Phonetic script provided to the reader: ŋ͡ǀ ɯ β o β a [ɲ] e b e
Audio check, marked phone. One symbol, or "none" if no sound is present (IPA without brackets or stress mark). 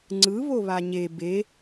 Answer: ɲ